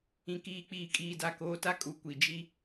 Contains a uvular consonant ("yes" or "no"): no